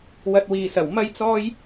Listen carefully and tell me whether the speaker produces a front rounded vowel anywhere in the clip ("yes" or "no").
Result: no